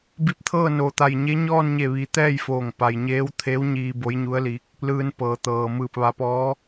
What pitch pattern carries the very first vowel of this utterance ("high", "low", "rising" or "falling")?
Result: rising